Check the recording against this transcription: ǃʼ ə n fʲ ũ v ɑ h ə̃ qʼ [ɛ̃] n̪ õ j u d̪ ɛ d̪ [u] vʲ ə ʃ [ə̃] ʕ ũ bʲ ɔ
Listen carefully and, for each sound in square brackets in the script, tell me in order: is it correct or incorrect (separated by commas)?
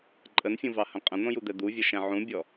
incorrect, correct, incorrect